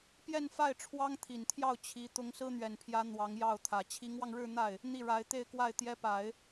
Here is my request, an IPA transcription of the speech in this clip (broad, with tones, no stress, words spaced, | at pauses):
pjɛ˥˧nfa˥˩ɪ̯ ʈ͡ʂʰwɑ˥ŋt̪ʰi˨˩nt̪ʰjɑ˥˩ʊ̯ t͡ɕʰi˧˥ t̪ʊ˧˥ŋsɹ̩˥n̪ɥɛ˨˩npʰjä˧˥ n̪wɑ˧˥ŋjɑ˥˩ʊ̯t̪ʰä˨˩ t͡ɕʰi˧˥ŋwɑ˧ŋɻɻ̩˥˧n̪a˥˩ɪ̯ | n̪i˥˩ɻa˧˥ɪ̯ t̪e˥˧ɪ̯kwa˥˩ɪ̯ t̪jɛ˧˥pa˨˩˦ɪ̯